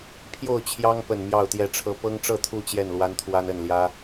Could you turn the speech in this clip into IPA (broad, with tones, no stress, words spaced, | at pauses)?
pʰjo˥˨ʊ̯t͡ɕʰjɑ˦ŋpə˨˩n mjɑ˥˨ʊ̯t̪jɛ˥˨ʈ͡ʂʰɤ˦ pɤ˦ŋʈ͡ʂɤ˥˨t̪ʰu˥˨ t͡ɕjɛ˥˨nlwa˦nt̪ʰwa˦nə˥˨n ljä˦